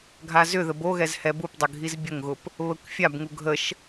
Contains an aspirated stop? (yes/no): no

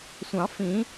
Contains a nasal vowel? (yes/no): yes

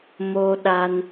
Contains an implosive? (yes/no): yes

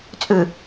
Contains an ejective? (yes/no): yes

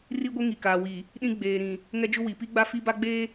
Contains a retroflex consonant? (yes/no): no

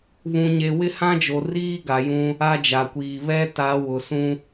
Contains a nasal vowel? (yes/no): yes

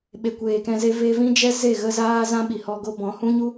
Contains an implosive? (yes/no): yes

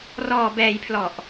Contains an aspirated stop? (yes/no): yes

